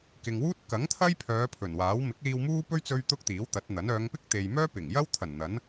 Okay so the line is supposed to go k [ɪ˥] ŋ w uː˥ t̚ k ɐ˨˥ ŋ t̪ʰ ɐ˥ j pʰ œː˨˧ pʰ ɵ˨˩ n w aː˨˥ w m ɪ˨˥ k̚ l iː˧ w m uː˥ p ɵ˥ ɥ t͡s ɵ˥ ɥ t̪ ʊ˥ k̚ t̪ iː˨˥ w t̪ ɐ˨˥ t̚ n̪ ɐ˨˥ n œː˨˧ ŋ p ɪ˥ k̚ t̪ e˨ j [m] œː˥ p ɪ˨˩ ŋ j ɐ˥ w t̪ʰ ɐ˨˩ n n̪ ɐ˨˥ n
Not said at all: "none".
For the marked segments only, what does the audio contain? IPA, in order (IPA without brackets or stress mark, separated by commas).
ɪ˨, m